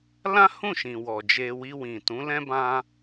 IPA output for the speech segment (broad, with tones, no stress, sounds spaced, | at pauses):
l ã˦ h ũ˦˨ ʃ ĩ˨ w ɔ˨ d͡ʒ e˧ w i˧ w ĩ˨ t ũ˨˦ l ɛ̃˦ b ã˦